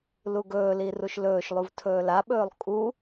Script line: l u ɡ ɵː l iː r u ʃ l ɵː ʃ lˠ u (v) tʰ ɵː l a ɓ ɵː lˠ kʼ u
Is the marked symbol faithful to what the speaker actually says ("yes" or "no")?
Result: yes